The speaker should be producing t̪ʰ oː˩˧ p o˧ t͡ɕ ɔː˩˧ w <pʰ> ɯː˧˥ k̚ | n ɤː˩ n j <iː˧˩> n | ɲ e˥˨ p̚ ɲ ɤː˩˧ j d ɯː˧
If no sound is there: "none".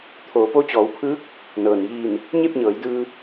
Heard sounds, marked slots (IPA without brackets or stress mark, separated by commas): pʰ, iː˧˩